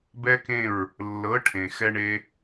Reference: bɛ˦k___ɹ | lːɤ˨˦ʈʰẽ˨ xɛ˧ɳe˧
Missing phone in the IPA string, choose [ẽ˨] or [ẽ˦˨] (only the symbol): ẽ˦˨